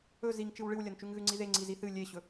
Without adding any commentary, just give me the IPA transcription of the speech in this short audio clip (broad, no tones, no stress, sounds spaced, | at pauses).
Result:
ɵ z i ŋ t͡ʃ ɨ w ɭ ɨ w lʲ ɐ n t͡ʃ ʉ ŋ ɣ ʉ ŋ͡ǀ i ð e ŋ͡ǀ i z i θ ɨ lʲ e ɕ ɵ